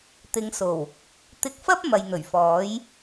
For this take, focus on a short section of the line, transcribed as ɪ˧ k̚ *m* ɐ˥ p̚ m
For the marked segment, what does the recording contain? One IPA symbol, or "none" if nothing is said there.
f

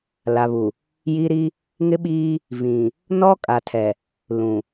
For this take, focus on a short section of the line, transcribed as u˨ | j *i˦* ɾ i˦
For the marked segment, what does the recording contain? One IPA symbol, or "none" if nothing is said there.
i˦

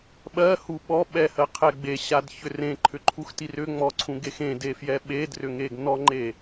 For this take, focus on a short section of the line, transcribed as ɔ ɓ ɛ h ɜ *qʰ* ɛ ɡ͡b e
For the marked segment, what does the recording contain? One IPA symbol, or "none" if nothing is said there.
qʰ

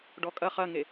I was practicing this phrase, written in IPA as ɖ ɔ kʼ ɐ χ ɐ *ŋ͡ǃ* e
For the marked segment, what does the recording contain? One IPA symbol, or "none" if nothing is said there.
ŋ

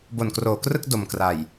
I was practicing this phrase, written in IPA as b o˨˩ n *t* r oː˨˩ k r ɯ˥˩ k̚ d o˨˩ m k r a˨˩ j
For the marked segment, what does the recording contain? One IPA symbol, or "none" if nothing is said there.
k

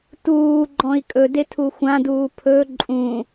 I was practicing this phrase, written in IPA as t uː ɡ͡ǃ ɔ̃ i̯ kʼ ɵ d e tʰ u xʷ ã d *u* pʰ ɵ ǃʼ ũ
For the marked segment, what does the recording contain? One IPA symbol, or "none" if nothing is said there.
uː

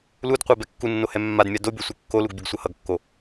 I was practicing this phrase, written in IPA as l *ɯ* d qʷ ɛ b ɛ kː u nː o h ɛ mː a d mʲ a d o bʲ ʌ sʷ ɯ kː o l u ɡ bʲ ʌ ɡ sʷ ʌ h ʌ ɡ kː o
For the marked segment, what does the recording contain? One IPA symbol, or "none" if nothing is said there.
u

